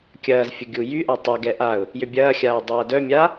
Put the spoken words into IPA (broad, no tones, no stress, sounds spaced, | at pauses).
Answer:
kʲ ɐː z fʲ ʊ ɡʲ u j y ʔ a tˤ ɛ ɡ ɛ ʔ a ʊ̯ | j ʏ bʲ ɐː xʲ aː dˤ ɐː d œ mʲ a